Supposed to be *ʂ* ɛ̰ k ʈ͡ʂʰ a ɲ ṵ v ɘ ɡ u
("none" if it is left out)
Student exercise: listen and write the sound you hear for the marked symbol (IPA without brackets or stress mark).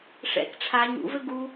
ʂ